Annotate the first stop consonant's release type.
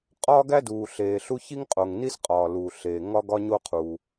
ejective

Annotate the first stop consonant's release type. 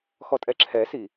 ejective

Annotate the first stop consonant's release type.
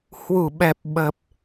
implosive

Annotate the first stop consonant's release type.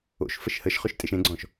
ejective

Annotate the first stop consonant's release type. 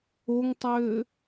plain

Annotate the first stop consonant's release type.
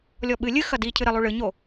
implosive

